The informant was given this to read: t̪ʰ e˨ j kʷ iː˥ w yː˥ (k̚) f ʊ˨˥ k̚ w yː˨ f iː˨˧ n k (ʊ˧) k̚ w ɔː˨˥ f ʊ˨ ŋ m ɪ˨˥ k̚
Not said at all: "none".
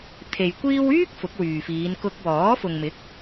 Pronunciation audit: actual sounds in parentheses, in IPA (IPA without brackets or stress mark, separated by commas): k̚, ʊ˧